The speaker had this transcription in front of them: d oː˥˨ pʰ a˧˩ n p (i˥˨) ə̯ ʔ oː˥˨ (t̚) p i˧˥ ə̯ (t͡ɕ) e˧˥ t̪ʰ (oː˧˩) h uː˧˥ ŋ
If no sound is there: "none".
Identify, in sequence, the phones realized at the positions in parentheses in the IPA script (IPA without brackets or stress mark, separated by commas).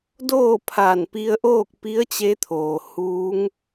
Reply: i˧, k̚, t͡ɕ, oː˩